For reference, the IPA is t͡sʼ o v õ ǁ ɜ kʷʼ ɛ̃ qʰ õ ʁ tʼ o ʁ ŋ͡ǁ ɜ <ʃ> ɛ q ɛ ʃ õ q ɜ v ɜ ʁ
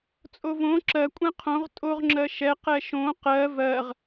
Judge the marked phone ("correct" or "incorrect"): correct